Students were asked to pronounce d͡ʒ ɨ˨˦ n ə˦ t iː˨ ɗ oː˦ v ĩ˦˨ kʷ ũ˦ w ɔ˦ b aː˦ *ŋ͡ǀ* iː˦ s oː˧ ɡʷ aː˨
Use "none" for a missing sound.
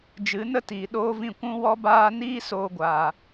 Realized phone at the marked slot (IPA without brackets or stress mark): n